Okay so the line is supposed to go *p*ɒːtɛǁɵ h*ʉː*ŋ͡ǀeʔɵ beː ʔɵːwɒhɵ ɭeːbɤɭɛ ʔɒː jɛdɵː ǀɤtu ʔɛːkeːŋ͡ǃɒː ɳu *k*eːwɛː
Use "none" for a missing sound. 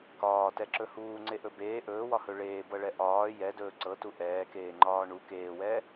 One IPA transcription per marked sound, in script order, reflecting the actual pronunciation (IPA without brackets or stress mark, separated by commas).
k, uː, k